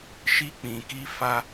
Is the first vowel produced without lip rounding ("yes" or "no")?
yes